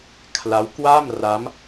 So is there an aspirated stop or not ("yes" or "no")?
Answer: yes